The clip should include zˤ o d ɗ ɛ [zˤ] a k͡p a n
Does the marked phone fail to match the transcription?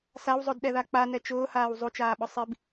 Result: yes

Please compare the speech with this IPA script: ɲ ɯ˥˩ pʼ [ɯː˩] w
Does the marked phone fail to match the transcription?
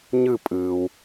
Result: no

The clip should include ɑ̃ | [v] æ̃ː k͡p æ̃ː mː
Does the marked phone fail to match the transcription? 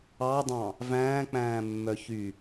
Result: no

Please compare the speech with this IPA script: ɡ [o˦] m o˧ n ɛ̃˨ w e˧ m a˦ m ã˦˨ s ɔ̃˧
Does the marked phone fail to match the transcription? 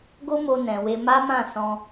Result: no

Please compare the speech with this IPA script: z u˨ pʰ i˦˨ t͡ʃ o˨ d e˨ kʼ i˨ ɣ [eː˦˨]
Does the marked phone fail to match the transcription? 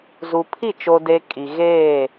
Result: no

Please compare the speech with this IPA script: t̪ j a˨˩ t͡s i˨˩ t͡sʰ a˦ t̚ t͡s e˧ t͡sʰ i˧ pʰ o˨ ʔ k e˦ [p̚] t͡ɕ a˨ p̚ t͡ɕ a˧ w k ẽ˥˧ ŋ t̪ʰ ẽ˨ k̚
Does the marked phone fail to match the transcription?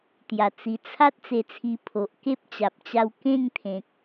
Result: no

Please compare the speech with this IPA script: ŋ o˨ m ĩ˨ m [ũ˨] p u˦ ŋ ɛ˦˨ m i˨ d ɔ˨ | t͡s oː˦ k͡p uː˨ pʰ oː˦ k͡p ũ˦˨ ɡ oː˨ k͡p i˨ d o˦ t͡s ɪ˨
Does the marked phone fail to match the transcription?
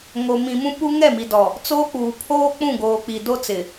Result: yes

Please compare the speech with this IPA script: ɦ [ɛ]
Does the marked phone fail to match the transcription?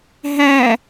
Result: yes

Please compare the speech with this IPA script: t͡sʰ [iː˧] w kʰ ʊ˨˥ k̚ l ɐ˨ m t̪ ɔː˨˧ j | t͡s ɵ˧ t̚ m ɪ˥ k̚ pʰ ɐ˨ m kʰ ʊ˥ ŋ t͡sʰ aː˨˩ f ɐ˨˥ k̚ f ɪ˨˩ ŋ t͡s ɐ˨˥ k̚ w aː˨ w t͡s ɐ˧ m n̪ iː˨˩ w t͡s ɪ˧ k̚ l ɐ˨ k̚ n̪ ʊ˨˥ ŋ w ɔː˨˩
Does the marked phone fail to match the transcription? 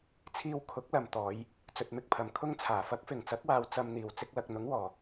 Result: no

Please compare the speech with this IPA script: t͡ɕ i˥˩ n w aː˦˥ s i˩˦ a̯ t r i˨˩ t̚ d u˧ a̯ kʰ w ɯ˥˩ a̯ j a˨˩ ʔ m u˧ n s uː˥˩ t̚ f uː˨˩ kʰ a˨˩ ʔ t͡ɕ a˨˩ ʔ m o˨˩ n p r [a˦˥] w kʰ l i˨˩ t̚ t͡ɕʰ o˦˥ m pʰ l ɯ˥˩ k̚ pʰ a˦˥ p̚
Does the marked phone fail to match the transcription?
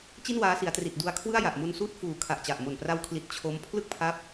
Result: yes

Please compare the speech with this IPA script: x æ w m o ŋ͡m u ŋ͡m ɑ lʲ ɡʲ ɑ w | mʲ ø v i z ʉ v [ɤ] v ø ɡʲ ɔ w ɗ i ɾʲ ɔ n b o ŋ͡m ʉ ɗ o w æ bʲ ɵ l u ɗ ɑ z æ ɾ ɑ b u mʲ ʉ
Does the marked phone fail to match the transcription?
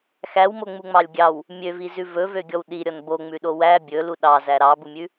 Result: yes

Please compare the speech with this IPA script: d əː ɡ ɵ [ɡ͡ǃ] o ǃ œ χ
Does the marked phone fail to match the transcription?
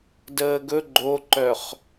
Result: no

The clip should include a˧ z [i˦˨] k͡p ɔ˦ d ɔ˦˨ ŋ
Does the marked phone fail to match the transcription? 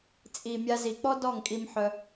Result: yes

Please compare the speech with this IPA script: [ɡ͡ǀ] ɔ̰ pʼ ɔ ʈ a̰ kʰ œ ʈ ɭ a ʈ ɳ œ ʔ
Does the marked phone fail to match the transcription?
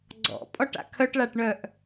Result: no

